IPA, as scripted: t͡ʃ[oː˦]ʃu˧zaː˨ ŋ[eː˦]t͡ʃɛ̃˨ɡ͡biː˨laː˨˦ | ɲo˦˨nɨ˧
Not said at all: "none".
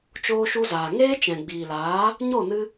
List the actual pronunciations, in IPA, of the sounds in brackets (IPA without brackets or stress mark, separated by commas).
oː˧, eː˦